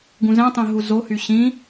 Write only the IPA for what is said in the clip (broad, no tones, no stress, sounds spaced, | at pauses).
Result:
ɡ ũ z ɛ̃ tˤ ẽ ɦ u z o h y ɕ ĩ